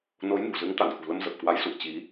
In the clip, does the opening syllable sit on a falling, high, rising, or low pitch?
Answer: rising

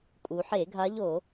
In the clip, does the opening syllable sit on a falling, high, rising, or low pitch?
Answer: low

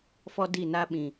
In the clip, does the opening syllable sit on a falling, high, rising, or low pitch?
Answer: high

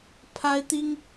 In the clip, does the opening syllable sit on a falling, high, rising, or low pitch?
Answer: high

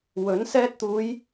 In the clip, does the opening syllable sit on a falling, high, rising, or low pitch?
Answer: rising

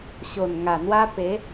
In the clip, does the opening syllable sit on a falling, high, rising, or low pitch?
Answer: low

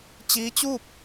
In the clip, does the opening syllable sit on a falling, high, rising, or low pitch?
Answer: rising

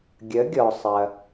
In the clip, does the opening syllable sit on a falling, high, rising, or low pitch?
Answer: rising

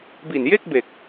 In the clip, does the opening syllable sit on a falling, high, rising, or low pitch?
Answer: low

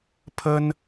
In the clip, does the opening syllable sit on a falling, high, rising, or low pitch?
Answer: high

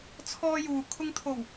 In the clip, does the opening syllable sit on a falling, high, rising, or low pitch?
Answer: high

